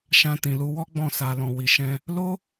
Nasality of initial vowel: nasal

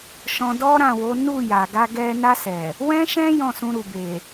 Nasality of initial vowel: nasal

